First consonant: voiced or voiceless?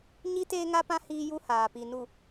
voiced